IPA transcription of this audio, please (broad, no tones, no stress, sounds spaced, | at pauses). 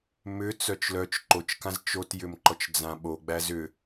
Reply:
m ʏ t͡s œ t͡ʃ l œ t͡ʃ ǃ o t͡ʃ k ã z t͡ʃ o t j ʏ m ǃ ɔ t͡ʃ d͡z ã ɓ o ɡ͡b æ z ʏ